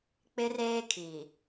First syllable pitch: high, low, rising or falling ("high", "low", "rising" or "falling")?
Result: high